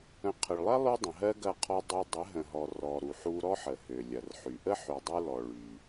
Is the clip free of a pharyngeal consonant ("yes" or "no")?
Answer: no